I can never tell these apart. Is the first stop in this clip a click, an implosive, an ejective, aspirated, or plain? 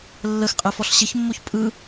ejective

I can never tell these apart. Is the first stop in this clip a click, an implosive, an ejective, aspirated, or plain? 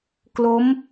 plain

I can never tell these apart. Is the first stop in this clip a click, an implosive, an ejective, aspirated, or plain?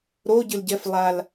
plain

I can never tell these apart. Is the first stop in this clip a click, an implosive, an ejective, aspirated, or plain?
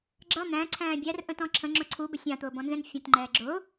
click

